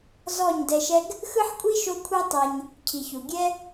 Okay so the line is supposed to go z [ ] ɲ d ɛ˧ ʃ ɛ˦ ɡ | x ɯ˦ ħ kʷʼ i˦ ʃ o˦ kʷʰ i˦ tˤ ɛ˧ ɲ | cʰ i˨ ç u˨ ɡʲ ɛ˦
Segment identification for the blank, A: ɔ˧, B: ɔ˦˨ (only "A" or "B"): B